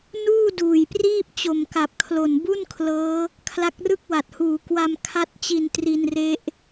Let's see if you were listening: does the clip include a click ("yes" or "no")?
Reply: no